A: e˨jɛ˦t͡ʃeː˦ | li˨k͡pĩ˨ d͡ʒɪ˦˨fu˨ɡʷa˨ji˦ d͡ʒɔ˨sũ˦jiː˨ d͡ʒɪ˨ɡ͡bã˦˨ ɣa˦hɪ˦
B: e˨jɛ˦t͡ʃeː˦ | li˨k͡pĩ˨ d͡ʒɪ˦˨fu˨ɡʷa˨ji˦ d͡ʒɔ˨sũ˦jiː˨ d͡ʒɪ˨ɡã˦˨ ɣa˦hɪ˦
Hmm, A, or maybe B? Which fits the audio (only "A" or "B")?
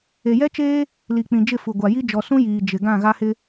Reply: B